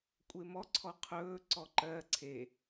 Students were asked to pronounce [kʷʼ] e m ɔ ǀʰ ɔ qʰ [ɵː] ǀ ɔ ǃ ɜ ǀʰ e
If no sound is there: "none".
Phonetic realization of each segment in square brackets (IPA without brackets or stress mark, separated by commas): kʷʼ, ɵː